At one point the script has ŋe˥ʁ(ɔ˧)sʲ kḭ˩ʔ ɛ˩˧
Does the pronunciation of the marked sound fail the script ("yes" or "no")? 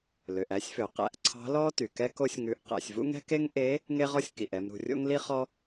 yes